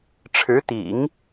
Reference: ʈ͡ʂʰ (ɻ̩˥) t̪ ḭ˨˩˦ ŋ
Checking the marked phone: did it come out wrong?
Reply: yes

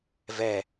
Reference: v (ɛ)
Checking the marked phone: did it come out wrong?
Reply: no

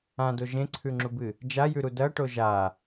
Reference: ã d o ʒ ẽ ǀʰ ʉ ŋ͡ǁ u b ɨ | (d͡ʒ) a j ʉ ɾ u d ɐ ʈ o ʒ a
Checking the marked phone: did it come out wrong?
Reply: no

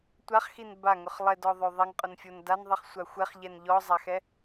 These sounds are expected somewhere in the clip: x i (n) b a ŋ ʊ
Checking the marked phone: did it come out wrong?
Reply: no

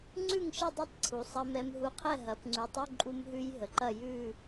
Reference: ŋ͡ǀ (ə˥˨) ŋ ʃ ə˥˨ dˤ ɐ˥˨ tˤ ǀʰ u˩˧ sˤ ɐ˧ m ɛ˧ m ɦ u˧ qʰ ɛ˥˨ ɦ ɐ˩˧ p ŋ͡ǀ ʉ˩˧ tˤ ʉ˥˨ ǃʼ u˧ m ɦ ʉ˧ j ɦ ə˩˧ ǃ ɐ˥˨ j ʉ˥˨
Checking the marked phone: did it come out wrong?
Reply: yes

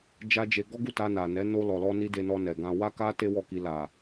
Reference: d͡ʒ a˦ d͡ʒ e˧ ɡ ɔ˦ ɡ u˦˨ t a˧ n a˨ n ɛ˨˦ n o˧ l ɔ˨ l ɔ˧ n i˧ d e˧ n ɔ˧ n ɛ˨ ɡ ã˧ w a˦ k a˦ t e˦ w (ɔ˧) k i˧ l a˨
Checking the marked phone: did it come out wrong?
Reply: yes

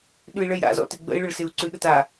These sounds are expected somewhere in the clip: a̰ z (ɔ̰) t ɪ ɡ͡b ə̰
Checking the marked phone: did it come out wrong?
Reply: no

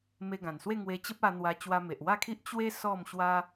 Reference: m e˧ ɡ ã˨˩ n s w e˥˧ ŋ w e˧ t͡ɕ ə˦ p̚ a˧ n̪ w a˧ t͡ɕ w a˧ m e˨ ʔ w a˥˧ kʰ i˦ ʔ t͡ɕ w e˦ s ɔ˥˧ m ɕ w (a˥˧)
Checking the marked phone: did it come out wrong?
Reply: yes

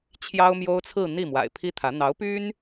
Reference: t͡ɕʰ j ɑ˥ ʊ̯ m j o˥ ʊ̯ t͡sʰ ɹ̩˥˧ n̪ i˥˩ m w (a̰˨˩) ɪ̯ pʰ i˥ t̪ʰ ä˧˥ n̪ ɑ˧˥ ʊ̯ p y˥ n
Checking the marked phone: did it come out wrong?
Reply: no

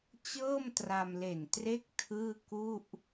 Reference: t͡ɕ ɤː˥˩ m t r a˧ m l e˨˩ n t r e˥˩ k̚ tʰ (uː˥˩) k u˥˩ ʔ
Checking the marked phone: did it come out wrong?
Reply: yes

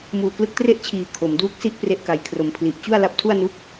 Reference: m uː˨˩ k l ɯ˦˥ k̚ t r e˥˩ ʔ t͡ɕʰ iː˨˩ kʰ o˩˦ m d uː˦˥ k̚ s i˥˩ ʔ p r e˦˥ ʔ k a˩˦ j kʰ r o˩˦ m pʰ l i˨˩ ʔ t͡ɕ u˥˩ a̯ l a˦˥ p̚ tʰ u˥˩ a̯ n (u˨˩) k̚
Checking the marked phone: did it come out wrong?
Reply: yes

